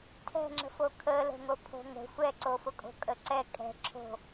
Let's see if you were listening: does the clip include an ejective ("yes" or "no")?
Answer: yes